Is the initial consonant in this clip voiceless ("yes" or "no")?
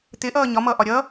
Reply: yes